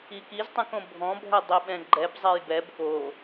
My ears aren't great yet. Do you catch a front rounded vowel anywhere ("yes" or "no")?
no